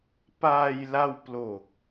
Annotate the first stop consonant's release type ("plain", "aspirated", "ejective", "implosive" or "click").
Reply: plain